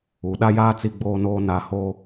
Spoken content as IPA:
u˨ ɗ a˦ j aː˦ t͡s i˦ ɡ͡b oː˦ n oː˦ n a˦ h o˦

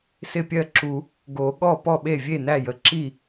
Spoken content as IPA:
s ɪ˥˩ pʲ ɜ˥˩ ǁ u˨˩˦ | ɡ o˨˩˦ ɠ ɔ˥˩ p ɔ˥˩ ɓ e˥˩ vʲ e˥˩ n æ˥˩ j ə˨˩˦ ǁ i˥˩

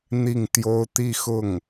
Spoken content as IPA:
n̪ i˥˩ ŋ t̪ j o˥ ʊ̯ t̪ i˥˧ x ʊ˥˩ ŋ

